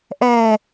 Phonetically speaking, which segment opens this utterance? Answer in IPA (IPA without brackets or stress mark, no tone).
ʔ